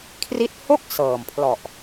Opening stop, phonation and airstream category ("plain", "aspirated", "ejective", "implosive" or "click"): aspirated